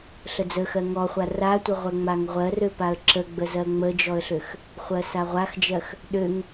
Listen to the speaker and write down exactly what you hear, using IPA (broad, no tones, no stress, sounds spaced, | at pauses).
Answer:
ɬ ə d͡z ə x ɜ ŋ ɔ χʷ a r a tʷ ə ʁʷ ɜ ŋ͡m a ŋ ʁʷ ɜ r ø p a ə̯ ǁ ə ɡ͡b ə z ɜ ŋ͡m ə d͡ʒ ɔ ə̯ ɬ ø x | χʷ ɜ s a ʁʷ a x d͡ʒ ɜ x | ɗ ø ŋ